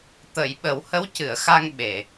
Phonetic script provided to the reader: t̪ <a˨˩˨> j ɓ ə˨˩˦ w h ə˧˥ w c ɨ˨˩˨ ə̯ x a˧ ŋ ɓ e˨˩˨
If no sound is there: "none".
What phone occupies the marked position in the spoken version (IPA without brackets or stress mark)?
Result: ə˨˩˨